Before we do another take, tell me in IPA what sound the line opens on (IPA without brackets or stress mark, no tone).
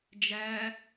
d͡ʒ